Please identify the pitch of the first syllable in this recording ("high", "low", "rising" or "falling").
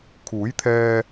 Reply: rising